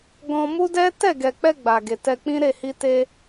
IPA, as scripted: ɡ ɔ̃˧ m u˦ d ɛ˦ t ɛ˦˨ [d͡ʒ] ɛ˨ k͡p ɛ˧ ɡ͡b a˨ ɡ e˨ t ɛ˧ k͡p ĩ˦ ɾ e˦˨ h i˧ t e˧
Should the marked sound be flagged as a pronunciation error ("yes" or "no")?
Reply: yes